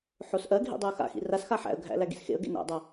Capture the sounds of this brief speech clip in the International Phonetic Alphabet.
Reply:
ħ o s ʔ ɜ ɡʱ ḭ dˤ o ə̯ x a̰ x ḭ r a s x a ħ æ̰ ə̯ ɡʱ æ̰ l æ ɡ ḭ s x ḛ ə̯ ɡ ḛ n æ̰ dˤ a

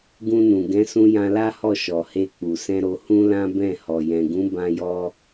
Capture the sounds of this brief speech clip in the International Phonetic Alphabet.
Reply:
ɡ ũ˧ n ũ˨ ɡ ɛ̃˨˦ s ũ˧ j ã˧ l a˦ h ɔ˦˨ ʃ ɔ˨ h e˧ k͡p u˨ s ɛ̃˧ ɾ o˧ h ũ˦ l ã˦ b ɛ̃˦˨ h ɔ˨ j ɛ̃˨ ɡ ũ˨˦ b ã˧ j ɔ˧

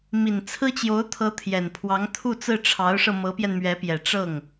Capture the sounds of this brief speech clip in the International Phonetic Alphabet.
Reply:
m i˨˩ n t͡sʰ ɹ̩˥ t͡ɕ j o˧˥ ʊ̯ t̪ʰ ɤ˧˥ t̪ʰ j ɛ˨˩ n pʰ w ɑ˧˥ ŋ t̪ʰ u˥˧ t͡s ɹ̩˥˩ ʈ͡ʂʰ ɑ˧˥ ʊ̯ ʂ ɤ˧ m ɤ˧˥ p j ɛ˧ n m ɥ ɛ˧˥ p j ɛ˨˩ ʈ͡ʂ ɤ˥˩ ŋ

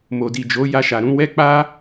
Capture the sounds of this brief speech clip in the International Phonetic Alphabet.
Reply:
m o˨ d i˨ d͡ʒ o˨˦ j a˧ ʃ a˨ ɾ ũ˧ w ɛ˦ k͡p a˦

